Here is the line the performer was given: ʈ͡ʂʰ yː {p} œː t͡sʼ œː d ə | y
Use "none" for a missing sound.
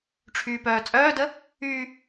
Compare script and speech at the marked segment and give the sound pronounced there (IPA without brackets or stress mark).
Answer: p